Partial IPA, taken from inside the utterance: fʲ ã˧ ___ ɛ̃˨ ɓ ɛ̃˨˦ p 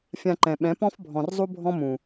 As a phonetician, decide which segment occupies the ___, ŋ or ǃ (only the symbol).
ǃ